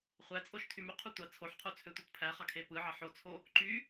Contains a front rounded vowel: yes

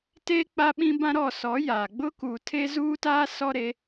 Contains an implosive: yes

